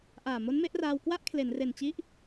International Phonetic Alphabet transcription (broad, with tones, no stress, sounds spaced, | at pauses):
ʔ aː˨˩ m o˦˥ n m e˦˥ ʔ r aː˧ w k w a˥˩ ʔ kʰ l e˩˦ n r e˨˩ n t͡ɕ i˦˥ ʔ